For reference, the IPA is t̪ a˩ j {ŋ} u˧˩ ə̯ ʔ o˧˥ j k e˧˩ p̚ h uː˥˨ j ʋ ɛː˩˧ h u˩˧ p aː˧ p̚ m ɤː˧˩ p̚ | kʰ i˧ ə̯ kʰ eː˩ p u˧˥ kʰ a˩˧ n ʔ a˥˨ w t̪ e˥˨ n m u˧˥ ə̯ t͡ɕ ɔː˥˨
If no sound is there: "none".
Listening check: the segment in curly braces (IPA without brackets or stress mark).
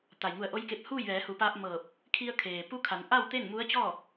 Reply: ŋ